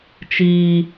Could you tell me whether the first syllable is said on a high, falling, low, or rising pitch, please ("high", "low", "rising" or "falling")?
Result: high